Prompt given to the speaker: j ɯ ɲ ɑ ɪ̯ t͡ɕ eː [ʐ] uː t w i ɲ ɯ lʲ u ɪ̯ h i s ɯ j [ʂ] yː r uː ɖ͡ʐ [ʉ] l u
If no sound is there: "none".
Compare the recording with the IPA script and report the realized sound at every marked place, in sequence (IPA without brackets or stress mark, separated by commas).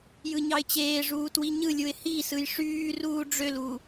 ʐ, ʂ, ø